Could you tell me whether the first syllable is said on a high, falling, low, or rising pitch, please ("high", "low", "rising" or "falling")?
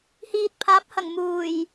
low